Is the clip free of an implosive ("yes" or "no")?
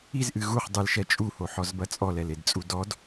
yes